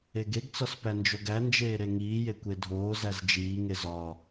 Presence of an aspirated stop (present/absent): absent